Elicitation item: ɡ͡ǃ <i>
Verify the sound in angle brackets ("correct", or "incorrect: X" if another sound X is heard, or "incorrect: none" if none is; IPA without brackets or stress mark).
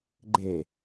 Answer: incorrect: e